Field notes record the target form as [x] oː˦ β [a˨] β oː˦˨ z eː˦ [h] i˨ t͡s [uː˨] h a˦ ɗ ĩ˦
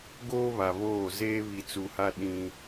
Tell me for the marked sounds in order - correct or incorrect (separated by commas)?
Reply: incorrect, correct, incorrect, incorrect